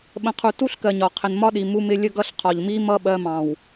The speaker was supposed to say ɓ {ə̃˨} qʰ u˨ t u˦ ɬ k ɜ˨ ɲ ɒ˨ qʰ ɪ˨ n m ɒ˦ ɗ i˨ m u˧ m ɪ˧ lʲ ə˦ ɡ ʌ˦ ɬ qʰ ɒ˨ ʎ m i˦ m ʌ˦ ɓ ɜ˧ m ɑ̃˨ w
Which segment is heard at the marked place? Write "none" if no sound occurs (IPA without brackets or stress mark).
ə̃˨